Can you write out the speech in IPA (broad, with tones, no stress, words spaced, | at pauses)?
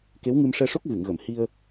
ke˧˥wŋɨ˧mʂɛ˧ʂo˦˥k̚ ɣɨ˨˩˨ŋɣə˨˩˨m hi˧ə̯